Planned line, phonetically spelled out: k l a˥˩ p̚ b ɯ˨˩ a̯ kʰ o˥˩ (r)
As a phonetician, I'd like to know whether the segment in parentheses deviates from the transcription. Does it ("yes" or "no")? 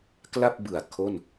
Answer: yes